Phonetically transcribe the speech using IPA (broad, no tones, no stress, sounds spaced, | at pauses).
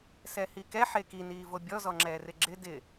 s ɛ h i k ɛ ħ e k i n iː v o bʲ ɔ z ɔ ŋ͡ǁ ɛː r ɪ ɡ͡ǁ ɪ d ɪ